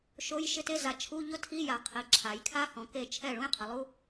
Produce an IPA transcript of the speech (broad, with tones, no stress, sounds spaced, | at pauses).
ʃ o˧˥˧ j ʃ ɪ˧˥˧ t e˧˥˧ z a˩˧ t͡ʃʰ u˧˥˧ ʎ ʊ˥ tʰ i˧˥˧ j a˩ qʰ i˩˧ ǁʰ a˩˧ j kʰ a˥ h ɔ̃˩˧ k e˥˩ t͡ʃʰ ɛ˥˩ ɭ ũ˥ j qʰ ɪ˩˧ lˠ u˧˥˧